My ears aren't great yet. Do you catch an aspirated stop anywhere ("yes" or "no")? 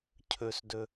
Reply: yes